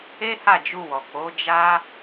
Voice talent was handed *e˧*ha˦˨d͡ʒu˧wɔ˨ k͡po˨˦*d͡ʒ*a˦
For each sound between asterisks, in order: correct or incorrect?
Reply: incorrect: e˦, correct

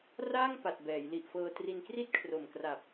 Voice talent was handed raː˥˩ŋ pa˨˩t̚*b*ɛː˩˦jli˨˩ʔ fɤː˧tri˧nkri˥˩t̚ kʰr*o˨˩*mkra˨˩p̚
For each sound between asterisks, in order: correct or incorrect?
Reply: correct, correct

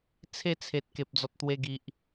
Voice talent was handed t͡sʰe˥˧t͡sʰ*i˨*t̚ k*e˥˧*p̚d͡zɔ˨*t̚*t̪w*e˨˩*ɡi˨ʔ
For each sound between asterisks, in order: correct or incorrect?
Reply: incorrect: e˨, incorrect: e˨, correct, incorrect: e˧

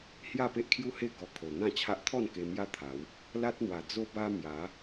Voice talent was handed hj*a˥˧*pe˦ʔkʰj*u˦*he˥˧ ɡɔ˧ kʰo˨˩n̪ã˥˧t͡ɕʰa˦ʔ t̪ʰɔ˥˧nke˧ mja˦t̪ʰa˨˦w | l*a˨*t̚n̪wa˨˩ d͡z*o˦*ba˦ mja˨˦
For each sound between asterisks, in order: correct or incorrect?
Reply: correct, correct, incorrect: a˦, correct

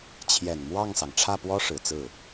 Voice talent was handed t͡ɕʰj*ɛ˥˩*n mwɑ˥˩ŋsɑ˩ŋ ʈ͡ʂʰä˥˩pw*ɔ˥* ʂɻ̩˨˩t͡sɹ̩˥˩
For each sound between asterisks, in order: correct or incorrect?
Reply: incorrect: ɛ˨˩, correct

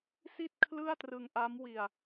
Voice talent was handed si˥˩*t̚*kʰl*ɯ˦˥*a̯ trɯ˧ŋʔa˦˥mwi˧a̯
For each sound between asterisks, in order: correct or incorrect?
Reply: correct, incorrect: ɯ˥˩

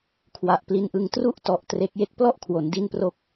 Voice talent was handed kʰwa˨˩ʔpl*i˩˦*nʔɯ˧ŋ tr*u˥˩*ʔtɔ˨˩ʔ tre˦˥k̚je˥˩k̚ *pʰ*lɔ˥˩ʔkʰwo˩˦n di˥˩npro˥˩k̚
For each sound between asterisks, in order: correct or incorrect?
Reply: incorrect: i˧, correct, incorrect: p

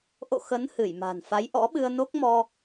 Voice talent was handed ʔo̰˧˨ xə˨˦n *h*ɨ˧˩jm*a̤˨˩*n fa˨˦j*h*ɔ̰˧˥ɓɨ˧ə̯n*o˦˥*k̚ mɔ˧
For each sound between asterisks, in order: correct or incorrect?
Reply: correct, correct, incorrect: ʔ, correct

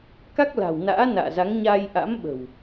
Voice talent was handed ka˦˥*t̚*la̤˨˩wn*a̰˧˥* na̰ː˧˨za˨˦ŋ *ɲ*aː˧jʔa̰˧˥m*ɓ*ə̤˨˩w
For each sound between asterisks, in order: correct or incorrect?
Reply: incorrect: k̚, incorrect: a̰ː˧˥, correct, correct

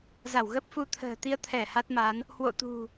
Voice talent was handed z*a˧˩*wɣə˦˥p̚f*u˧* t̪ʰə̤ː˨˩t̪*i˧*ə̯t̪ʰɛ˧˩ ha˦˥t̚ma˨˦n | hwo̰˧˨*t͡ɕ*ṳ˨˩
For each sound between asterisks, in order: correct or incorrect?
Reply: correct, correct, correct, incorrect: t̪

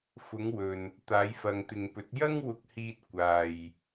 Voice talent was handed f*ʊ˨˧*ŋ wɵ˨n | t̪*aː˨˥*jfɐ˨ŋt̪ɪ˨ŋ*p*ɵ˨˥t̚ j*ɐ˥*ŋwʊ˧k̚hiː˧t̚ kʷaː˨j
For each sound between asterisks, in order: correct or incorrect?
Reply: correct, incorrect: aː˨˧, correct, correct

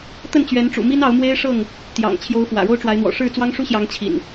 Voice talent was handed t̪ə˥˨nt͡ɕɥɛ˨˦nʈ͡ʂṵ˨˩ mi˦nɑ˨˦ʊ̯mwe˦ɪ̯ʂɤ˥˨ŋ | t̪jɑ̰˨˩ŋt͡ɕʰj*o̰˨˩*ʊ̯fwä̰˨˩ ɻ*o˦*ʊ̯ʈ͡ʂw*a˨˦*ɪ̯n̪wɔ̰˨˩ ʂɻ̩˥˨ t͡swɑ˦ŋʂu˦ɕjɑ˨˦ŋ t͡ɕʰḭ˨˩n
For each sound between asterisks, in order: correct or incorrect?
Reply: incorrect: o˨˦, correct, correct

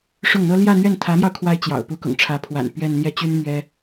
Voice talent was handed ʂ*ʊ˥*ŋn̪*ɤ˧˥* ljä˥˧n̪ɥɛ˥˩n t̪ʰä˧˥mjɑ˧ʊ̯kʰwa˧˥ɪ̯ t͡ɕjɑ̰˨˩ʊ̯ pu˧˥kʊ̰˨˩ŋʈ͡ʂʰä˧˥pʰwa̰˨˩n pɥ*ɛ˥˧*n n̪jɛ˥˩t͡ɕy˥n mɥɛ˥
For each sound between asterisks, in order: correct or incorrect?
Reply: incorrect: ʊ˥˩, incorrect: ɤ˥, correct

